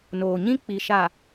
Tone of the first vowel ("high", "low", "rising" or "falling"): low